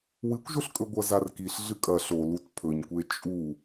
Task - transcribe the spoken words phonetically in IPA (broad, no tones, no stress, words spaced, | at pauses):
wɨkʷʒɵɬkʼɵɡʷɐ zarkiɬ ɮɨkʼɐ ɬolut pʰɵɲkʷe t͡ʃʼu